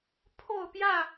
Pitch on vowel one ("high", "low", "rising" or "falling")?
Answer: falling